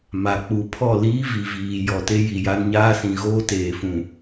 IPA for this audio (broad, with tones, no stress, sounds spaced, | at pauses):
m a˨ k͡p u˨ pʰ ɔ˦˨ l iː˦ v i˨ v iː˨ j ɔ˨ t e˦ j i˨ j a˦ n ɲ aː˦ s ĩ˨ ɣ oː˦ t eː˨ f ũ˨